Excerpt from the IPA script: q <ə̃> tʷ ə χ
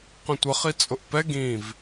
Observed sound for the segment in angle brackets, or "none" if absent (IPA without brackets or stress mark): ə̃